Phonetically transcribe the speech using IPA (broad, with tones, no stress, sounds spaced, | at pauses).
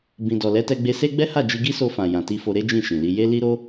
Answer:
b ĩ˧ d ɔ˨ l ɛ˨˦ t ɛ˧ ɡ͡b e˧ s e˦ ɡ͡b ɛ˦ h a˦˨ d͡ʒ i˧ ɡ i˦ s o˧ f ã˨ j ã˨ t i˧ f o˧ ɾ e˦ d͡ʒ ĩ˦˨ ʃ ĩ˨ l i˧ j e˦ l i˦ ɾ o˦